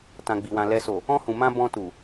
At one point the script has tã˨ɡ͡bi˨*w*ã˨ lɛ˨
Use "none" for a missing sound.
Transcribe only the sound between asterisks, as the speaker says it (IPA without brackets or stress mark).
w